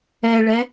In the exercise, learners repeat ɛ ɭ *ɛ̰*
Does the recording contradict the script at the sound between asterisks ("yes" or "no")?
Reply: yes